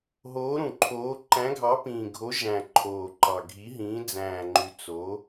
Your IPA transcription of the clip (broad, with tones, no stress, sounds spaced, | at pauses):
ɦ oː˨˥ ɾ ũ˨˩ ǃʰ oː˨˥ ǃ æ̃˨˥ ɡʱ ɑ˨˥ p ĩː˨˩ ɡʱ o˨˥ ʒ æ̃˨˩ ǃʰ oː˨˩ ǃ ɑ˨˩ ɡʱ i˨˥ ɦ ĩː˨˥ d͡z æ̃ː˨˩ ŋ͡ǃ y˨˩ t͡s o˨˥